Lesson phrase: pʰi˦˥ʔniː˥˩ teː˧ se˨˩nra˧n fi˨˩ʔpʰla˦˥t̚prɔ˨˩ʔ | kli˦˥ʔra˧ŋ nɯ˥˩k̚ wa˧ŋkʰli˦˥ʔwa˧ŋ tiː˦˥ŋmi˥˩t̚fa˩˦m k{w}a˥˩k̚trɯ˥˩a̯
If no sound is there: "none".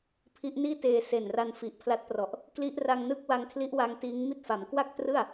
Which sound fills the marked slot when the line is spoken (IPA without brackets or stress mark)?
w